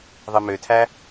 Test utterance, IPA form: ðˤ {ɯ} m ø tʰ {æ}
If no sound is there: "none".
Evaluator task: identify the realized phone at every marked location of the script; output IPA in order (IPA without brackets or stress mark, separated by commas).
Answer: ɯ, æ